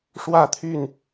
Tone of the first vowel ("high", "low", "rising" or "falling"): falling